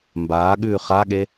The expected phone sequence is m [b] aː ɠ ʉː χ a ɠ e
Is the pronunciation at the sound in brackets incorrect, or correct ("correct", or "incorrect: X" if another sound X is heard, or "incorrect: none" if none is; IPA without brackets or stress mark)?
correct